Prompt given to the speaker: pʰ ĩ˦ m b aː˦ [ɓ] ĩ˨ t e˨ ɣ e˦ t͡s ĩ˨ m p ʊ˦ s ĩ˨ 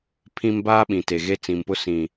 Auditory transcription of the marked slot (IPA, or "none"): ɓ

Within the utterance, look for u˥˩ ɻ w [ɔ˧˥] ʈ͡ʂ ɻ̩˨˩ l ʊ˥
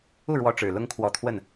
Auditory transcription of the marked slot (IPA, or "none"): ɔ˧˥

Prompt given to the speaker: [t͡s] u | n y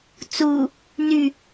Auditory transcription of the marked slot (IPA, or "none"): t͡s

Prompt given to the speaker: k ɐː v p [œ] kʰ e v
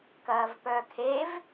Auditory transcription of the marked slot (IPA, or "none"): œ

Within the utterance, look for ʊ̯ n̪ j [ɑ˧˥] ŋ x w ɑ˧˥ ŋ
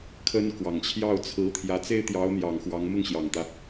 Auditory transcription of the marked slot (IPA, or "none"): ɑ˨˩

